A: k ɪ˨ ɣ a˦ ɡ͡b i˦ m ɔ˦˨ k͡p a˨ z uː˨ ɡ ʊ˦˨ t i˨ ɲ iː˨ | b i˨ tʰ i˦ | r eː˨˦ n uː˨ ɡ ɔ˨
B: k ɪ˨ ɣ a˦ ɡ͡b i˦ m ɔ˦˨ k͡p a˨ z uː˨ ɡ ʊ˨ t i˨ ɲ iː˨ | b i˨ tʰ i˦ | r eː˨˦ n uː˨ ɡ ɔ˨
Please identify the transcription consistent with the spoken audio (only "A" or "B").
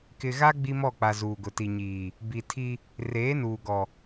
B